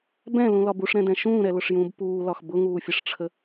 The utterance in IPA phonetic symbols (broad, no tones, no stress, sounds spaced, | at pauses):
b ɛ̃ l ũ l ɒ b u ʂ ɾ ɛ̃ d ɛ̃ ʃ ũː ɾ ɛ l ʊ ʂ j ũː b p uː l ɒ x b ʊ ŋ uː fʲ ə ʂ ʈ͡ʂʰ ə